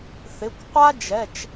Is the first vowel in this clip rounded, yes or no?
no